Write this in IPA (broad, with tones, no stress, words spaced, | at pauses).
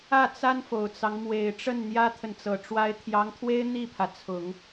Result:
ä˥˩t͡sa˥nfo˨˩ʊ̯t͡sɑ˦ŋ mwe˨˩ɪ̯ʈ͡ʂə˥˩n n̪jä˥t̪ʰə˨nt͡sɤ˨˩ ʈ͡ʂwa˧˥ɪ̯t̪ʰjɑ˧˥ŋt̪ʰwe˥ɪ̯ n̪i˥˩pʰä˩t͡sʰʊ˨˩˦ŋ